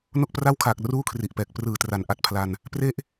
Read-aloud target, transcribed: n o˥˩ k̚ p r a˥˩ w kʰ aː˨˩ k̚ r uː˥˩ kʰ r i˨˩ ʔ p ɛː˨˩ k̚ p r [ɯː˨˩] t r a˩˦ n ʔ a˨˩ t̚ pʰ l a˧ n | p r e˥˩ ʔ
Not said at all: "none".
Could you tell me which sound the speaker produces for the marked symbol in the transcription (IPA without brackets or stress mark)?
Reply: ɯː˨˩